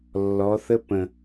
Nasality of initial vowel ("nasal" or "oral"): oral